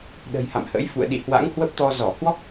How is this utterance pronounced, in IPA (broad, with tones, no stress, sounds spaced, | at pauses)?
ɗ ə̤˨˩ j h a̰˧˨ m h ə̰˧˥ j f ṵ˧˨ ə̯ ɗ ḭ˧˨ h w a̰˧˥ ŋ h w ə˦˥ p̚ t̪ ɔ˧ z ɔ˧˩ h w ɔ˦˥ k̚